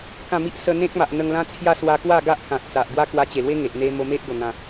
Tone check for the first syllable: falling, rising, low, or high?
falling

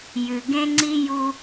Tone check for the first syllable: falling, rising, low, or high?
low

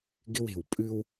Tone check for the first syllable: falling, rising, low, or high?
high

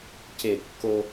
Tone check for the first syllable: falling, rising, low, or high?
falling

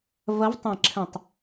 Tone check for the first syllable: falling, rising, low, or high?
rising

